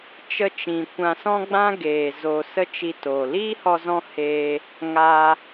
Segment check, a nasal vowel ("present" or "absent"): present